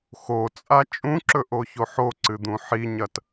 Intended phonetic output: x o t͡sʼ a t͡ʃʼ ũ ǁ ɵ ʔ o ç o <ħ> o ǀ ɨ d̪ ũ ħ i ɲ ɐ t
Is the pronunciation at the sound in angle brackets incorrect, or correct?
correct